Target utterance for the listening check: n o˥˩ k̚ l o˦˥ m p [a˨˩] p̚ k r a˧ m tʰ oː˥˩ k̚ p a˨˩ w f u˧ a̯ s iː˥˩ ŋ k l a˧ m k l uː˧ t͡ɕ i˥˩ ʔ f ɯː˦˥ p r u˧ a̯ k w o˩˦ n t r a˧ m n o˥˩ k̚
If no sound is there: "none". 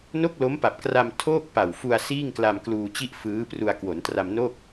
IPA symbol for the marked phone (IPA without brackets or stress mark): a˨˩